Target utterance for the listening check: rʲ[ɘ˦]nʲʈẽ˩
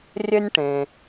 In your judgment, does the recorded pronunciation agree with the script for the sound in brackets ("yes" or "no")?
yes